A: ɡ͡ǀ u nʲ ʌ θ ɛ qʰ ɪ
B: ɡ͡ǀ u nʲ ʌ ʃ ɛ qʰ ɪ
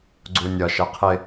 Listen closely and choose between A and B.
B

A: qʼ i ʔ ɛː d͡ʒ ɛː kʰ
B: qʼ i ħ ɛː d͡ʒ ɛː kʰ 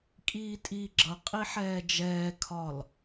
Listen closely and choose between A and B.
B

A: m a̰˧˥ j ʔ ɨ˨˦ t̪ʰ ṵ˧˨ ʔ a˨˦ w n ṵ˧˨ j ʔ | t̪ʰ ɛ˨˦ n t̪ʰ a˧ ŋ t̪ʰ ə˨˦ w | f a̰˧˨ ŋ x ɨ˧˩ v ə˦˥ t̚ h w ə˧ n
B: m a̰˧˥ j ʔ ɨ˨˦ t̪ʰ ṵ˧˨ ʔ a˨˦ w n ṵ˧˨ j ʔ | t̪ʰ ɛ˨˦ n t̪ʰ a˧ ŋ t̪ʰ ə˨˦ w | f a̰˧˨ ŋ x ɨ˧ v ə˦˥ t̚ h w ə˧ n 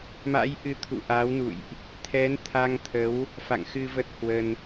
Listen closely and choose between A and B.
B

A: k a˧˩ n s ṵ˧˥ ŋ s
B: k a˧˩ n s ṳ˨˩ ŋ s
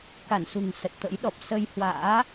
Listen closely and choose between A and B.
B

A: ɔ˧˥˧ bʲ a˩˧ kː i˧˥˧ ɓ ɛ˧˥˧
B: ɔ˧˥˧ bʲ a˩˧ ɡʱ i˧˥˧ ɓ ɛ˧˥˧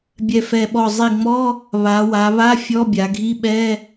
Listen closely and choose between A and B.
B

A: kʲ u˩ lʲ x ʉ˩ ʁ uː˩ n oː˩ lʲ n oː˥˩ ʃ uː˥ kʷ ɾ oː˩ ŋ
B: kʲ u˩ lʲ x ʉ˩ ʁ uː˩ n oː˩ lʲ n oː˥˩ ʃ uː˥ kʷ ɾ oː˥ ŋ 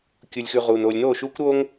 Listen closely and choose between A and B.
B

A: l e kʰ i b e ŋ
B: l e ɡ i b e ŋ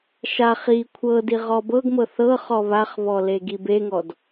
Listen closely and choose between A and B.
B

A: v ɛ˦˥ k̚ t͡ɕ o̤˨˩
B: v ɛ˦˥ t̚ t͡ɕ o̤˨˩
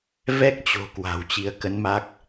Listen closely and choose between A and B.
A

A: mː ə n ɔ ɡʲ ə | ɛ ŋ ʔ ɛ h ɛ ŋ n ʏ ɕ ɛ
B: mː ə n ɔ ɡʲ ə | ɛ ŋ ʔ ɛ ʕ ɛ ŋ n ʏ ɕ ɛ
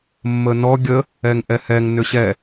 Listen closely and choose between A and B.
A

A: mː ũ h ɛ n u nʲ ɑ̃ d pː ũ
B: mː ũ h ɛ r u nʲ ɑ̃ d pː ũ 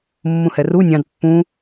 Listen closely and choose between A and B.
B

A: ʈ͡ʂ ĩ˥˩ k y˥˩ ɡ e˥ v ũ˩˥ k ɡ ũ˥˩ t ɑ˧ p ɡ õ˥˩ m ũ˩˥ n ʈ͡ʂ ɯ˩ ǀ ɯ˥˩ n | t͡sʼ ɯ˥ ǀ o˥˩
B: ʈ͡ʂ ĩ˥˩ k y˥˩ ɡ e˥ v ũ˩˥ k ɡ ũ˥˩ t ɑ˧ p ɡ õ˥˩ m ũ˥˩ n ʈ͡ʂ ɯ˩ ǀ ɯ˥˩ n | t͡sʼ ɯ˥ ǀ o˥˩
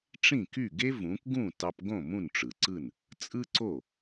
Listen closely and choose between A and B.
B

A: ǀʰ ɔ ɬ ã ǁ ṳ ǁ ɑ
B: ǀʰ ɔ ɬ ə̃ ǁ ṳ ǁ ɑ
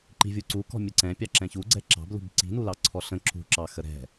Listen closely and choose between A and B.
B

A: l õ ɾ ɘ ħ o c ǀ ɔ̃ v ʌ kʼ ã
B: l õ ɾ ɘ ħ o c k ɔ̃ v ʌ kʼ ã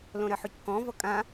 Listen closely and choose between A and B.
B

